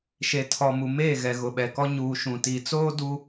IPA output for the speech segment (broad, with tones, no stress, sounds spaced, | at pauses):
ʃ e˨ tʰ ɔ˨ m u˨ m eː˦˨ ɣ ɛ˨ ɣ ʊ˨ ɓ ɛ˨ k ɔ˦ ɲ uː˨ ʃ ũ˨ t i˨ t͡s oː˦ d u˦